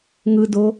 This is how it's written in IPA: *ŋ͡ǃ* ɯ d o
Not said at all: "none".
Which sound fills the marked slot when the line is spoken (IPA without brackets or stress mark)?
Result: ŋ